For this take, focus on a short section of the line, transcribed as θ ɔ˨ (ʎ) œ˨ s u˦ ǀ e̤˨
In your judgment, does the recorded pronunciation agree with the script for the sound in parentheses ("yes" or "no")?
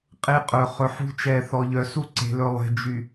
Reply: yes